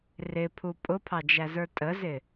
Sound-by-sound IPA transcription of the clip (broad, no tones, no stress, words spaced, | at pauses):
rɪpʰu pʼʊpʰɑd͡ʒæzə˞ tʼəzɪ